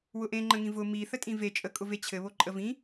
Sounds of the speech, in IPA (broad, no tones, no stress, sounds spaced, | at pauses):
w ʊ ʔ ẽ ŋ͡ǃ ə̃ ŋ ĩ v ʊ m i θ ə tʼ ĩ v e t͡ʃʼ ə kʼ ʊ v e t͡ɕʰ ɘ β o ǃʼ ə v ĩ